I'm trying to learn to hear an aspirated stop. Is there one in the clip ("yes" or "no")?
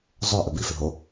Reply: no